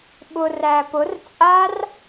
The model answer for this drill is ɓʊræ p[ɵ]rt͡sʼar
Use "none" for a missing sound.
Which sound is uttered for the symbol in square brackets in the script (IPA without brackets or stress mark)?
ʊ